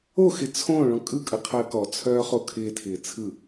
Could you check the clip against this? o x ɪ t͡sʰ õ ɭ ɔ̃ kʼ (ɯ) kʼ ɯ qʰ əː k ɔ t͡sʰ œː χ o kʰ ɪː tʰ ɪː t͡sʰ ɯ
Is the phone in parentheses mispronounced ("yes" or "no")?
no